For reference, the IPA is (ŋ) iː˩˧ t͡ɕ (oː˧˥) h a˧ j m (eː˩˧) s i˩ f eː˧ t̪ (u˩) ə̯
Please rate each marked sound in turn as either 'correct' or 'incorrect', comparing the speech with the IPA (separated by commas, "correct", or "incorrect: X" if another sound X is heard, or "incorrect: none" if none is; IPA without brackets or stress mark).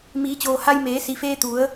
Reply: incorrect: m, incorrect: oː˩, correct, incorrect: u˩˧